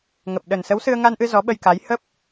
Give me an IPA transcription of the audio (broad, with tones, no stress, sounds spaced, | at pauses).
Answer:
ŋ ə˨˩ p̚ ɗ ə˨˩ n s ə˨˦ w s ɨ˧ ə̯ ŋ a˧ n ʔ ɨ˧ z ɔ˨˦ ɓ ə˧ j k a˨˦ j h ə˦˥ p̚